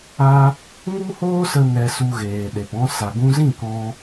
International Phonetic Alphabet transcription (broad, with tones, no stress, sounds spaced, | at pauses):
a˧ | ŋ u˦ h oː˦ s ə˧ n ɛ˧ s u˧ ɣ eː˨ ɗ e˨ p ɔ̃˧ s a˨ ɡ ũ˧ z ĩ˦˨ k ɔ̃˧